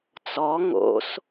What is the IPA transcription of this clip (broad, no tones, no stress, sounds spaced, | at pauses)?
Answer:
t͡s ɔ ŋ o̰ s